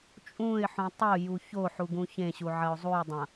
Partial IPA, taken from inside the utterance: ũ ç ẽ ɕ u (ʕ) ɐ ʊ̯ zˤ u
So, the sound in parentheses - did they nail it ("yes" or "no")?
yes